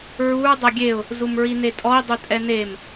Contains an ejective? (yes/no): yes